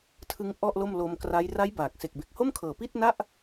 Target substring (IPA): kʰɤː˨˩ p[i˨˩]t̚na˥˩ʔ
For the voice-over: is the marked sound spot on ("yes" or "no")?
no